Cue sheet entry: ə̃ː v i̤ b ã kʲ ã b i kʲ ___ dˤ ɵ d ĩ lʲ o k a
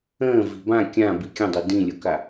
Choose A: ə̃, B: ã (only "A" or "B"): A